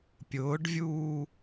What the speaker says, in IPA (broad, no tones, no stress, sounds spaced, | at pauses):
pʲ ʊː ɖ vʲ uː